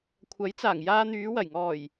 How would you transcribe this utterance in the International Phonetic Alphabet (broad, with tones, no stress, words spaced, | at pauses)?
kʷʰɐ˨˥jt͡saː˨˩ŋjaː˧ n̪yː˨˧wɐ˨˩jŋɔː˨˩j